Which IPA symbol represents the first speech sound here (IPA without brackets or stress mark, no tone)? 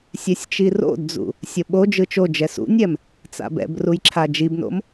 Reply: sʲ